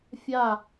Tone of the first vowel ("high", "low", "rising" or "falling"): falling